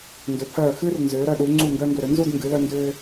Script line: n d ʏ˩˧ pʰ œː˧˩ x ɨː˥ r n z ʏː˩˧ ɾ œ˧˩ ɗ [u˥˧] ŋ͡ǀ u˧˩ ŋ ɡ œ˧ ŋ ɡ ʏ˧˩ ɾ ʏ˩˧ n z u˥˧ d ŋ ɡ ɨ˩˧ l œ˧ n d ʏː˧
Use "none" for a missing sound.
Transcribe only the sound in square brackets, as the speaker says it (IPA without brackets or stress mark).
u˩˧